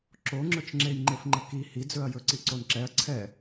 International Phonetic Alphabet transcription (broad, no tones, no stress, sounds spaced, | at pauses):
ǁ o ŋ͡ǁ ɵ t͡ʃ ŋ͡ǁ e j ŋ͡ǃ e f ŋ͡ǃ ə k i h i d͡z ɵ ɐ̯ j ɵ ǀ i ǀ o n ǁ ɛ ɐ̯ ǀʰ ɛ